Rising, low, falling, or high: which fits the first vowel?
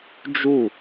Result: falling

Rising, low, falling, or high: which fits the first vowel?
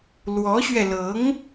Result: rising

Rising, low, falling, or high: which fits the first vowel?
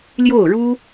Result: falling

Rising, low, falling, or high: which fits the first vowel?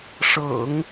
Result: low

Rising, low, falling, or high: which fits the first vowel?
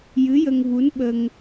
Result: rising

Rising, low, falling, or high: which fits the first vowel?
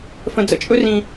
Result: low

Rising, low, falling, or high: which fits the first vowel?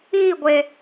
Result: falling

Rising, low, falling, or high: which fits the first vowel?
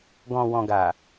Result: low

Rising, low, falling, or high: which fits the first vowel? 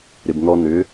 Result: low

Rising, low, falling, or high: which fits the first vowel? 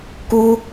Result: high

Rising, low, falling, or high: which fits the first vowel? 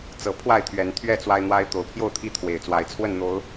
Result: low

